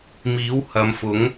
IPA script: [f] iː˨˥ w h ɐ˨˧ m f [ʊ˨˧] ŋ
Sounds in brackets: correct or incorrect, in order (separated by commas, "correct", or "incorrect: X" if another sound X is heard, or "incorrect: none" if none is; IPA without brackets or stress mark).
incorrect: m, incorrect: ʊ˨˥